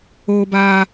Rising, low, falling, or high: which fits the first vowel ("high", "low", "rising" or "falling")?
high